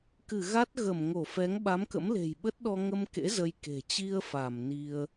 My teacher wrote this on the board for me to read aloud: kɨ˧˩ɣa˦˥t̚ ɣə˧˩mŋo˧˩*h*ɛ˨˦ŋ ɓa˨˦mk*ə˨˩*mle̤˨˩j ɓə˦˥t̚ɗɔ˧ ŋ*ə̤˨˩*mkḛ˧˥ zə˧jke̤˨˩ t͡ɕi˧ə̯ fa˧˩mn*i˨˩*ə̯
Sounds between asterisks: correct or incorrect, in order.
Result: incorrect, incorrect, incorrect, incorrect

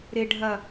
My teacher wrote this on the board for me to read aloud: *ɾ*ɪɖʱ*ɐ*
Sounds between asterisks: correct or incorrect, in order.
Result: correct, correct

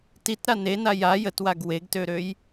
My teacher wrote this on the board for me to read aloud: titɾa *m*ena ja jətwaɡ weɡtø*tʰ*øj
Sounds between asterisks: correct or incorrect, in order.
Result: incorrect, incorrect

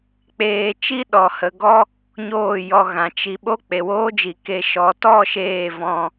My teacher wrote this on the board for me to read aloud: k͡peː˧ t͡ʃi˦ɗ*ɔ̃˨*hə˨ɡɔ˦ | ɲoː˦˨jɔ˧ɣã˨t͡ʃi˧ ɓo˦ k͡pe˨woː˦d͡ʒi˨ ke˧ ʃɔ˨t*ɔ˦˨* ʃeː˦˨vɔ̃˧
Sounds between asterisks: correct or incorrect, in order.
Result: incorrect, correct

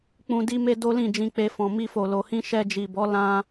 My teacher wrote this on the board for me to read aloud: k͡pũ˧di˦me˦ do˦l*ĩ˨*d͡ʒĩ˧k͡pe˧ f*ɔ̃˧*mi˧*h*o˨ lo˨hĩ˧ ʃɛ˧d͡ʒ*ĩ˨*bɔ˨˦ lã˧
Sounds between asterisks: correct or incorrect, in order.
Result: incorrect, incorrect, incorrect, incorrect

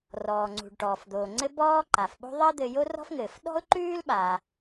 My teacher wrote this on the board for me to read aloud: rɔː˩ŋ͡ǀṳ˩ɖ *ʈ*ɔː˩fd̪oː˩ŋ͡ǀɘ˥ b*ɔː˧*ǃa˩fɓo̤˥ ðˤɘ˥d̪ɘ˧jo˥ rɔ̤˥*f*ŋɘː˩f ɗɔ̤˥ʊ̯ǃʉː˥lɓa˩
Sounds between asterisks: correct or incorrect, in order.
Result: correct, incorrect, correct

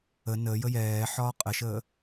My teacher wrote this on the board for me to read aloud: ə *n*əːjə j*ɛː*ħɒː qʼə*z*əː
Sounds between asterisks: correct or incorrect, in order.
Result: correct, correct, incorrect

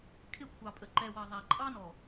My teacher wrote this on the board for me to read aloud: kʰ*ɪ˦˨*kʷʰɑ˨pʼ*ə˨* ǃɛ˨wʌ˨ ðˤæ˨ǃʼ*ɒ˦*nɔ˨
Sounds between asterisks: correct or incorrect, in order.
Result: correct, correct, incorrect

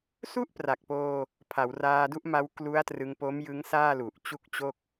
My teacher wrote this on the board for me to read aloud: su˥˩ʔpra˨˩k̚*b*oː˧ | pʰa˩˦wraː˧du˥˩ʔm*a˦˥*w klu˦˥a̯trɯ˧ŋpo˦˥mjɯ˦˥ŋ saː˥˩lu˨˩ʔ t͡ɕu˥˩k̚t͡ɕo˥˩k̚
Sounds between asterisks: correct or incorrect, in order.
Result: incorrect, correct

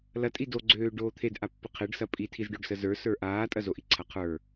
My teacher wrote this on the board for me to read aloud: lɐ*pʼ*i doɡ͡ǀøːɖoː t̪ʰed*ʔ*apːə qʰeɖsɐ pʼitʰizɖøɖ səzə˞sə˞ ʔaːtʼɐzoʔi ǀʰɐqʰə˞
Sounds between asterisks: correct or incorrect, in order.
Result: incorrect, correct

